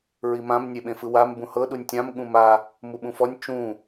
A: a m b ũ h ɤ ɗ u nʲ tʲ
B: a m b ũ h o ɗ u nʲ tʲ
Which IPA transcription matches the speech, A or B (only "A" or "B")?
A